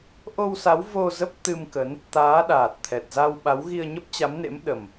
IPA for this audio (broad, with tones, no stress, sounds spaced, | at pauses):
ʔ o˧ w s a˨˦ w v o˧ z ə˦˥ p̚ t̪ ɨ˧ m k ə˨˦ n | t̪ aː˨˦ ɗ aː˨˩ t̚ t̪ʰ ɛ˨˩ t̚ z a˧ w ɓ a˨˦ w ɣ i˧ ə̯ ɲ ə˦˥ p̚ t͡ɕ a˨˦ m n ḛ˧˥ m ɗ ə˨˩ m